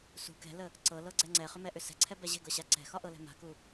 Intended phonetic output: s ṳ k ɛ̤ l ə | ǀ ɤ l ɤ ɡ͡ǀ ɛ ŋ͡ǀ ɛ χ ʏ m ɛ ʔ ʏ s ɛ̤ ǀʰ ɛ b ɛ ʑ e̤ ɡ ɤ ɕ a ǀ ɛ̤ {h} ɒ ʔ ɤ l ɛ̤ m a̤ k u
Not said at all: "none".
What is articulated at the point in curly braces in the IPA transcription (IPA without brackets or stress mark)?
x